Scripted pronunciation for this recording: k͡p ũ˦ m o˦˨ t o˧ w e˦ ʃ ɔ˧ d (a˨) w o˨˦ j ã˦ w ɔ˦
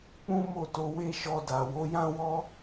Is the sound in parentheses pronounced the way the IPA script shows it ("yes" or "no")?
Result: yes